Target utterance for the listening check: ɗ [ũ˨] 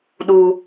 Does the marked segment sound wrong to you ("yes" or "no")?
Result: yes